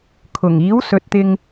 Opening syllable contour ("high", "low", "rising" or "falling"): low